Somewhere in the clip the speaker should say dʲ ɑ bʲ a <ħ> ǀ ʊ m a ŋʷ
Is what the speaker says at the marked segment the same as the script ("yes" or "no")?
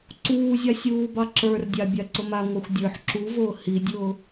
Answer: no